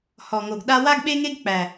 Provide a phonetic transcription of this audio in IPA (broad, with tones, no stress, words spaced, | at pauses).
hɔ˨ŋo˨ɡɗa˦ wa˦ɡɓe˦ŋe˦ɡ k͡pæ˨